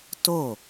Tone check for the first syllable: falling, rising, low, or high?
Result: falling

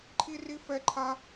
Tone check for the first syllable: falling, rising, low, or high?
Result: high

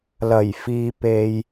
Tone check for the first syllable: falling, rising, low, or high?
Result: low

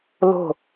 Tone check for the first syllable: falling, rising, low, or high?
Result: falling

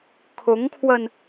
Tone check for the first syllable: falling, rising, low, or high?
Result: rising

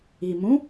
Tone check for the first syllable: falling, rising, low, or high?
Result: low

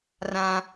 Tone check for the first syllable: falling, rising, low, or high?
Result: low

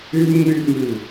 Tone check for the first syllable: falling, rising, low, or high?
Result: high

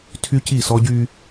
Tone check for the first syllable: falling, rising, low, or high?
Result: high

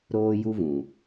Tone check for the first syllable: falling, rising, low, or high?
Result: high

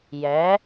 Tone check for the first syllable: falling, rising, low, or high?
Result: rising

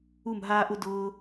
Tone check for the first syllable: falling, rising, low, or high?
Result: falling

